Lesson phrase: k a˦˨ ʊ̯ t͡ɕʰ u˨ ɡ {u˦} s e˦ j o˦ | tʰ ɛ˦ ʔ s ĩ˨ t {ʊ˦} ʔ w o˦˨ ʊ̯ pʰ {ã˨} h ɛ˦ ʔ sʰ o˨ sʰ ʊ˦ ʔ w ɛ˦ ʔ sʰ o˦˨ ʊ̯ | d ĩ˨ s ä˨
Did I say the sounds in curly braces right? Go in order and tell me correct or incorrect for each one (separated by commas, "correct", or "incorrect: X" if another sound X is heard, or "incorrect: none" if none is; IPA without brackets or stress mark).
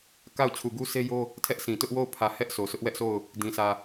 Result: correct, correct, incorrect: ä˨